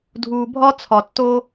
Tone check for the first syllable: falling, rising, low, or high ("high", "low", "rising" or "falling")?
low